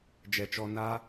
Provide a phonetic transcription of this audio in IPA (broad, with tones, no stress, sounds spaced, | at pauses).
d͡ʒ ɛ˨ t͡ʃ ɔ˧ n a˦